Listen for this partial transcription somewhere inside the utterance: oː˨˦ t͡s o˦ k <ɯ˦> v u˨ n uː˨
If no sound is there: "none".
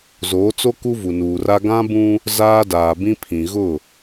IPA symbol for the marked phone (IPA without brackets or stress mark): u˦